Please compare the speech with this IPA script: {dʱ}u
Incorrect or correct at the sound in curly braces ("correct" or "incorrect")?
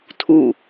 incorrect